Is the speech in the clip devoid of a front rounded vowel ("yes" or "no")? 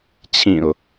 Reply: yes